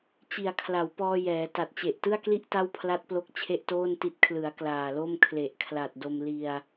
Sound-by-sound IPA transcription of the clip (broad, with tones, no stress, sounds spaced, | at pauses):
t͡ɕ i˨˩ a̯ kʰ l a˩˦ w p ɔː˧ j ɛː˩˦ t a˨˩ t̚ t͡ɕ e˨˩ ʔ t ɯ˥˩ a̯ k l i˥˩ ʔ t a˥˩ w pʰ l a˦˥ t̚ p l o˦˥ k̚ t͡ɕʰ e˥˩ ʔ t oː˥˩ n t i˦˥ t̚ kʰ l ɯ˩˦ a̯ k l aː˨˩ l o˥˩ m kʰ l e˨˩ ʔ kʰ l a˨˩ t̚ d o˧ m l i˧ a̯